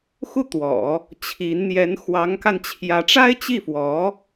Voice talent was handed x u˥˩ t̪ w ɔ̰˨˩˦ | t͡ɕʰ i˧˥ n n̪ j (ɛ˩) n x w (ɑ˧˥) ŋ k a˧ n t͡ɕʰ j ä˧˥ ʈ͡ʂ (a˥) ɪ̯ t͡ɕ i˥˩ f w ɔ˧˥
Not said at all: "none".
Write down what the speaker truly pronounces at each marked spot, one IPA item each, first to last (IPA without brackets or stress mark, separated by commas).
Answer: ɛ˧˥, ɑ˧˥, a˥